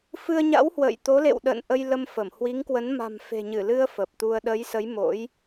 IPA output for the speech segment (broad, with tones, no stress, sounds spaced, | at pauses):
f ɨ˧ ə̯ ɲ a̰˧˥ w h w ə̰˧˨ j t̪ o˨˦ l ḛ˧˨ w ɗ ə̰ː˧˨ n ʔ ə˧ j l ə˧ m f ə˧˩ m h w i˨˦ ŋ k w ə˨˦ n m a̤˨˩ m f e̤˨˩ ɲ ɨ˧˩ l ɨ˧ ə̯ f ə˨˩ p̚ t̪ u˧ ə̯ ɗ ə˨˦ j s ə˨˦ j m o̰˧˥ j